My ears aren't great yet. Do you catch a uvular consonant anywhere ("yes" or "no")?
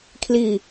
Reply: no